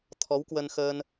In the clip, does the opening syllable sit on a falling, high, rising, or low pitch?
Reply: rising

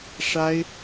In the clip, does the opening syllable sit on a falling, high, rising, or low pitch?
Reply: high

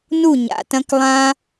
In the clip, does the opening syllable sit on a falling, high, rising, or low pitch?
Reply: falling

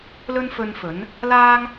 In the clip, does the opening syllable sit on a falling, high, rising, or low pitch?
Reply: high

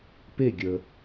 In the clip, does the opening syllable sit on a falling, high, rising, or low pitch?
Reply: falling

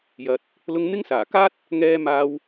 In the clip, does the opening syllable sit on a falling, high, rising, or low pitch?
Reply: low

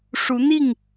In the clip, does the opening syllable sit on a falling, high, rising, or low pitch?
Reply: rising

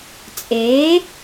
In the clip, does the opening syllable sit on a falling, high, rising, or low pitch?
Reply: rising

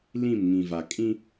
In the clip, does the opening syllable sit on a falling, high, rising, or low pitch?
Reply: falling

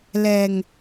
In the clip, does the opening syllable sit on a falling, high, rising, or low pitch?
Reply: low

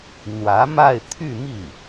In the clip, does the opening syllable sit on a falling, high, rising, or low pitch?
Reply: rising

